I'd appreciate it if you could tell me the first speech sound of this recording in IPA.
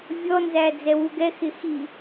vʲ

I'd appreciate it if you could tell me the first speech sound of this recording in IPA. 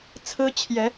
t͡sʰ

